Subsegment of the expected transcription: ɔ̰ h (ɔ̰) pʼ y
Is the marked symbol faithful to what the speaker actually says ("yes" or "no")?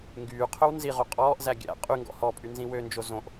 no